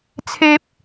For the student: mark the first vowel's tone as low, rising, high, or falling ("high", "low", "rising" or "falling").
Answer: high